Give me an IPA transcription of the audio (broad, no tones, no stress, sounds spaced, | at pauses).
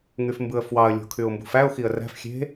ŋ y f m b ɯ ə̯ f w ɑ ə̯ lʲ o̤ kʰ y ʊ̯ m b ṳ f æ ʊ̯ x i ə̯ r æ̤ f xʲ e̤